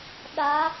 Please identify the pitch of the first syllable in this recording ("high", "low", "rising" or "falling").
rising